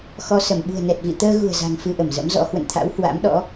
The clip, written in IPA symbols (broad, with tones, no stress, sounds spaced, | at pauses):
x ɔ˧ s ə˧˩ m ɓ ṳ˨˩ ə̯ n ɛ˨˩ t̚ v ḭ˧˨ t̪ əː˧ ɣ ṳ˨˩ ə̯ z a̤˨˩ ŋ f ɨ˧ ʔ ə˧˩ m z ə̰˧˥ m z ɔ̰˧˥ h w ə̰˧˨ n t̪ʰ a̰˧˥ w h w a̰˧˥ m ɗ ɔ̰˧˥